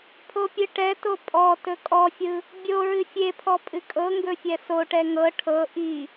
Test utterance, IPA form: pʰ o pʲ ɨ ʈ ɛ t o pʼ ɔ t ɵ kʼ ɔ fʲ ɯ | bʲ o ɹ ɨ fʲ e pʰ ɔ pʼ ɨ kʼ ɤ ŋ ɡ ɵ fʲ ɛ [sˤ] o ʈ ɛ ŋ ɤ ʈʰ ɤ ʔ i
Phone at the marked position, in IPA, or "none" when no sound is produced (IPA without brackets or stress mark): s